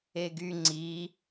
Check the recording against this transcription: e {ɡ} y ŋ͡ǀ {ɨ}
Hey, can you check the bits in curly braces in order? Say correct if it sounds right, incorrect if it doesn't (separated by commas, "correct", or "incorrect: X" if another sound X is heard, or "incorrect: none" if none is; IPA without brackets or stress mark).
correct, incorrect: i